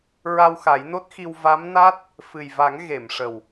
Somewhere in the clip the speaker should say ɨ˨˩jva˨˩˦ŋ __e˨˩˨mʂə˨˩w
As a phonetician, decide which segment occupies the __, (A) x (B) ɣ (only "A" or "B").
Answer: B